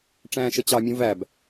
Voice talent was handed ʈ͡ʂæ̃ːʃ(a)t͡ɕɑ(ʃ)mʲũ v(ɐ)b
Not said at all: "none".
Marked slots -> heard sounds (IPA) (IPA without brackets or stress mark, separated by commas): ə, none, æ